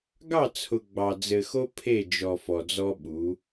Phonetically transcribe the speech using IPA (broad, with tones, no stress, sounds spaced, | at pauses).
ɡ ɑ˦˨ t͡sʰ ʊ˨ ɡ͡b ɑ˨ d͡z ɘ˨ x o˦ pʰ e˦˨ d͡ʒ ɔ˨ f ɔ˨ d͡z ɔ˦ ɓ u˨˦